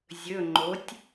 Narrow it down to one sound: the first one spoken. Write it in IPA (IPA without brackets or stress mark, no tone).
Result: zʲ